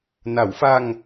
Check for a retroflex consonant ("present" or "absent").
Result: absent